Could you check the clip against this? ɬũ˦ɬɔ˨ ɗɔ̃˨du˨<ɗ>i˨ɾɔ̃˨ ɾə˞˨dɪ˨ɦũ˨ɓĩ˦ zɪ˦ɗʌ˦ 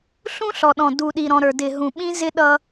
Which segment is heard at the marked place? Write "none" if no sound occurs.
ɗ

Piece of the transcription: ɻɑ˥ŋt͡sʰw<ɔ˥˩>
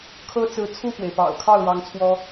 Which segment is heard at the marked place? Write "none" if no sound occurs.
ɔ˥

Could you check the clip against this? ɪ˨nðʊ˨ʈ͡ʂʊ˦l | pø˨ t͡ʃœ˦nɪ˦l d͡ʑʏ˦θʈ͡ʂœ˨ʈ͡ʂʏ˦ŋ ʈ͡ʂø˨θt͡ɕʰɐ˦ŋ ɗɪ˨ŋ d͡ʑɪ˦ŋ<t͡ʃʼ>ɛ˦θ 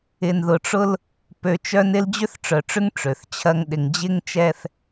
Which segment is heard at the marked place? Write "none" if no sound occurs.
t͡ʃ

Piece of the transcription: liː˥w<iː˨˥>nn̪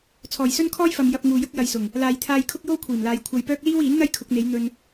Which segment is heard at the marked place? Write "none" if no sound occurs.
iː˨˥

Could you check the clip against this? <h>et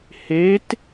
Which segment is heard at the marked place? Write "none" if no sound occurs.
h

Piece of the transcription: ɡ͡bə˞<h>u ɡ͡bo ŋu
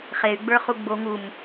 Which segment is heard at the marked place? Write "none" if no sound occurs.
χ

